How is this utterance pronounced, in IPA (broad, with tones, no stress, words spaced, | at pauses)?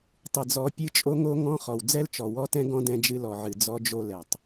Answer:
tˤɨ˨d͡zɔ˨˦ pʲɨ˦t͡ʃʼo˦ŋo˦ ŋɔ̃˦ χɔ˨wd͡zɛ˦lt͡ʃɔ˨ wɔ˦tɛ̃˦ɡɔ̃˦ dɛ̃˦d͡ʒɨ˦ lɔ˨ʕɨ˨ d͡zɔ˦d͡ʒo˦lɛ˨tˤ